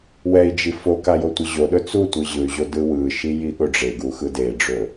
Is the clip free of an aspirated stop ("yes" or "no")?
yes